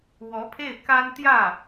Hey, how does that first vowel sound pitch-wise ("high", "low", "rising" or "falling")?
rising